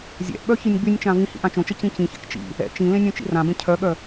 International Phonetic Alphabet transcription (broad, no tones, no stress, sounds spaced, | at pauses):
zʲ ɛ̰ ʔ ɓ œ ç i nʲ ɡ͡b y nʲ t͡ʃ ã v ĩ h ḭ ʔ ã t͡ʃ õ t͡ʃ ə c ĩ c ĩ ç ɛ̰ k t͡ʃ ḭ | ɛ̰ t͡ʃ ĩ l ẽ nʲ õ t͡ʃ ḭ r ã b ẽ cʰ œ ɠ œ